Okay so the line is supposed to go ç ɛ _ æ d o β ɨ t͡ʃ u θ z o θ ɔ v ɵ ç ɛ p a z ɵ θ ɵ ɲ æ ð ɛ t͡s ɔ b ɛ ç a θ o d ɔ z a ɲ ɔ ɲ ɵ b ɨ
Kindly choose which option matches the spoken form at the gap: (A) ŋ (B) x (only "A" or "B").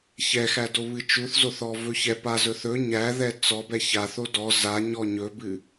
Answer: B